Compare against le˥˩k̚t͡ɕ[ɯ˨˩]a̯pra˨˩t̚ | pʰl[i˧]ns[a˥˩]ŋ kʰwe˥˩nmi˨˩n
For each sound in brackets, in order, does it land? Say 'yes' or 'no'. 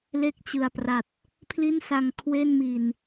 yes, no, no

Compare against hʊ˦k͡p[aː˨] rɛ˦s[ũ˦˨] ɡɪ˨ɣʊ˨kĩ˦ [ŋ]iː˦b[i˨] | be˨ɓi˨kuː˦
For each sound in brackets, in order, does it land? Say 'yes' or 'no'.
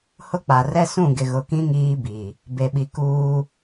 no, yes, yes, yes

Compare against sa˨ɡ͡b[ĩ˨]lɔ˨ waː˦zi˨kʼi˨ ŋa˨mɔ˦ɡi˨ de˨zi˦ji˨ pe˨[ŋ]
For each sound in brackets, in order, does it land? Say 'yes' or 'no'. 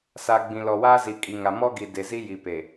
yes, no

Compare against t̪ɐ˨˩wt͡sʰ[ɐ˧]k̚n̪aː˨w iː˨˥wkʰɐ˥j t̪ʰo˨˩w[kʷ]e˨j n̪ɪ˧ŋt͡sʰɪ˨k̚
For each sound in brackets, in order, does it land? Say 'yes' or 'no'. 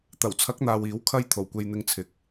no, yes

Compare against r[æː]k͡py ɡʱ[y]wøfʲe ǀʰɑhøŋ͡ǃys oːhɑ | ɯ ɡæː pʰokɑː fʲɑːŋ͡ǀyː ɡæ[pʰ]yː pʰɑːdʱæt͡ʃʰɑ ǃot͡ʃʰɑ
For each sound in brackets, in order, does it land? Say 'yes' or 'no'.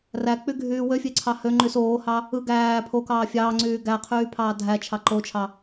no, no, no

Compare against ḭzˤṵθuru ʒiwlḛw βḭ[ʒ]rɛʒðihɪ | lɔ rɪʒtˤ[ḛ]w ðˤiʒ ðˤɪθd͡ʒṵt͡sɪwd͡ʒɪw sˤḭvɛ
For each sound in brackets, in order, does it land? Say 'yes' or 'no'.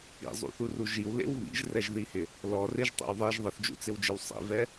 yes, no

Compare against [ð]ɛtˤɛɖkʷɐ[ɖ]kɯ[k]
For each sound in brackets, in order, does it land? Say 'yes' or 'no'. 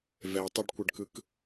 no, yes, yes

